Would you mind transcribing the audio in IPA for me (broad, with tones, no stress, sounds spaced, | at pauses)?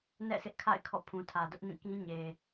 n ɛ̰˦˨ sʰ ɪ˦ ʔ kʰ a̰˦˨ ɪ̯ kʰ ɔ̰˦˨ pʰ ũ˨ tʰ ä˨ d ʊ˦ ʔ n ĩ˦˨ k ĩ˦ ɲ e˨